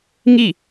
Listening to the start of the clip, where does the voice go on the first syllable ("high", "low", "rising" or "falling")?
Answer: falling